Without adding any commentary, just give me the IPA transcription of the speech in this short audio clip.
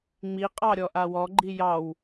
ŋ͡m i qʼ ɑ ɾʲ ɔ ʔ a w ɔ ɡ͡ǃ i j ɑ w

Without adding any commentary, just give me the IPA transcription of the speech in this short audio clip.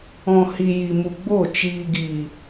ɔ̃˨ h i˨ j i˨ m u˨ ɡ͡b o˦˨ t͡ʃ iː˨ ɡ iː˨

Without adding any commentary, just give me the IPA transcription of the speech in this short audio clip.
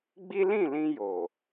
ɡ͡b i˦ l ĩ˦˨ l ĩ˧ j o˨

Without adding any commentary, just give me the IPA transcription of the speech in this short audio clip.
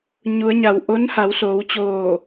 ɲ u˩˧ ə̯ ɲ a˩ w ʔ o˧˥ n h a˩˧ w s oː˩˧ w t͡ɕ oː˧˩

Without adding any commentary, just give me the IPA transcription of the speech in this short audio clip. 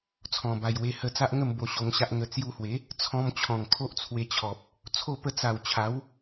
t͡sʰ ɔ̃˨˩ b a˨˩ j w e˧ h ə˧ t͡s a˦ ʔ ŋ ə˥˧ m b o˧ ɕ o˧ ŋ ɕ a˦ ʔ ŋ ə˧ t͡s j u˧ h w e˨˦ | t͡sʰ ɔ̃˧ m t͡ɕʰ ɔ̃˨˩ ŋ kʰ o˦ ʔ t͡sʰ w e˧ t͡ɕʰ ɔ˨ p̚ | t͡sʰ o˥˧ p ə˥˧ t͡s a˨˩ w t͡ɕʰ a˨˦ w

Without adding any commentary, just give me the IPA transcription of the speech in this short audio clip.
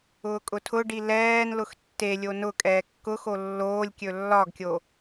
ʊː kʼ ʊ tʰ ʊ ɖ i l ɛː n l ʊ x tː e lʲ o n ʊ kʼ ɛː kː ʊ x o lː oː lʲ kʲ ɵ lː ɒ ɡ kʲ o

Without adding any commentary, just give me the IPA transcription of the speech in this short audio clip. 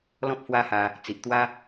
l ɔ̃˦ p̚ h w a˦ h a˧ | t͡s i˨ ʔ t̪ w a˦

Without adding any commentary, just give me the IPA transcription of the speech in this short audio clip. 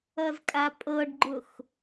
ʌ z kʼ a pʼ ɤ ɖ ɡ͡ǃ ʊ x

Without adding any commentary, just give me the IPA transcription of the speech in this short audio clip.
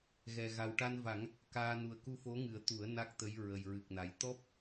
ɣ ɛ˨˩ ɣ a˨˩ w ʈ a˧ n v a˨˩˦ ŋ | k aː˧ n u˨˩ ə̯ k u˧ f o˧˥ ŋ ɨ˨˩˦ ə̯ t̪ u˨˩˦ ə̯ n a˦˥ k̚ t̪ ə˧˥ j ɹ ə˨˩ j ɹ ɨ˨˩ k̚ n a˨˩ j t̪ ɔ˦˥ p̚

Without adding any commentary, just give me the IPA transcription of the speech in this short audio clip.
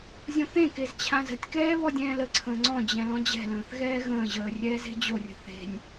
zʲ õ θ ẽ k e z t͡ɕʰ ã z ə̤ tʲ k ɛː β ɔ dʲ ɛ̃ː l ə ǀʰ ə̃ː ŋ͡ǀ ɔ̃ d͡ʑ ɛ̃ l ɔ̃ d͡ʑ ɛ̤ l ə̃ː θ ɣ ɛː ɣ ə̃ː ʑ əː rʲ ɛː z e̤ d͡ʑ o rʲ ə̤ θ e̤ nʲ

